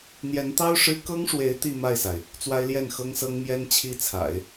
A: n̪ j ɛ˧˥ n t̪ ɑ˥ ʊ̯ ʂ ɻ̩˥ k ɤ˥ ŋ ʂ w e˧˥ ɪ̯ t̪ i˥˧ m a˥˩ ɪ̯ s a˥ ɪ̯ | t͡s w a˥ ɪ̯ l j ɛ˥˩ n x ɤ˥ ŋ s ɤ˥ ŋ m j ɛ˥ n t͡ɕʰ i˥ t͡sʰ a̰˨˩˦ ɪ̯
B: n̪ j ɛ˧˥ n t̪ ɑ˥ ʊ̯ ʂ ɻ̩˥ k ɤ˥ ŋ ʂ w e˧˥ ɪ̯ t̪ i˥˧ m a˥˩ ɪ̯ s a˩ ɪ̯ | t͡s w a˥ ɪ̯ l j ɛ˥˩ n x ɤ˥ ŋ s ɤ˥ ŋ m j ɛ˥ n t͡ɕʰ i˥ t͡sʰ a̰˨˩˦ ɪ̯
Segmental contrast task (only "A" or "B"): B